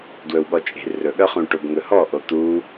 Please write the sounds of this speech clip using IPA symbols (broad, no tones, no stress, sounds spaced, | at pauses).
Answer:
d w ɵ w ɠ ɔ t͡ʃʼ e̤ r ɵ ɠ œ χ ũ ʈ o b ŋ ɵ h ɔ ʔ o t̪ u